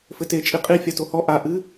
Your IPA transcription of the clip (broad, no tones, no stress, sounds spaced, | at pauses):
f ɘ t e t͡ʃʼ i qʼ i fʲ a t o h ɔ ʔ a ʔ ɨ